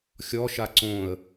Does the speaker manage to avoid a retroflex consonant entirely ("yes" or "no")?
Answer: yes